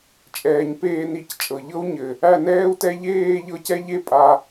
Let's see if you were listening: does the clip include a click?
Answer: no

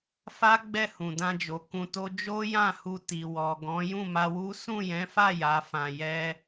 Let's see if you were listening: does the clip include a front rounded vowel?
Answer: no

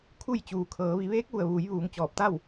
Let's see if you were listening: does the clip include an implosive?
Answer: no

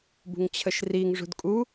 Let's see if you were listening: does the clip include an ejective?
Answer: yes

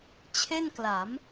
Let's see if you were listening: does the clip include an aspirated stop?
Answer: yes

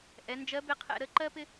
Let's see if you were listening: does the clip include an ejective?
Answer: no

